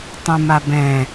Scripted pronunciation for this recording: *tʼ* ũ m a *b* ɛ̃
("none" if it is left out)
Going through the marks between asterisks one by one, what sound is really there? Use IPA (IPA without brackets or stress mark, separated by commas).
tˤ, b